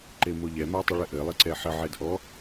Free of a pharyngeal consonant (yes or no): no